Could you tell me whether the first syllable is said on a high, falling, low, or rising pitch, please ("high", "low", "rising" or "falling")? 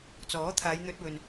rising